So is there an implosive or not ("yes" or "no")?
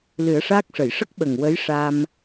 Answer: yes